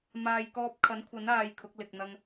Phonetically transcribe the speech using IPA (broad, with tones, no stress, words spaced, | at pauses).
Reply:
maː˨jkɔː˧p̚kʰɐ˨˥nkʷʰɐ˨˥n aː˧jkʰʊ˨˥k̚ lɪ˨k̚n̪ɐ˧ŋ